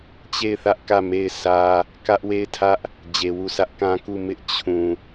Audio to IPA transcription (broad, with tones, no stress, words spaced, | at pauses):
t͡ɕe˦˨ɪ̯θä˦ʔ kä˦˨ me˦˨ɪ̯ sʰä˦ | kä˦ʔ we˦˨ɪ̯tʰä˦ʔ | d͡ʑe˨wu˦˨sä˦ʔ kã˦ku˦˨ mɪ˦ʔ t͡ɕʰũ˨